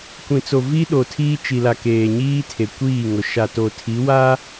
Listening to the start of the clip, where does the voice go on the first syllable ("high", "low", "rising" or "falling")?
low